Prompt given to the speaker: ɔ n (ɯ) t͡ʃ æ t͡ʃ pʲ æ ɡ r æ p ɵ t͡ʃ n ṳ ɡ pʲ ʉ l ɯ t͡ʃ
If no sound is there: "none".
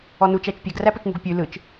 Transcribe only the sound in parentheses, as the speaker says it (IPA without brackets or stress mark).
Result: u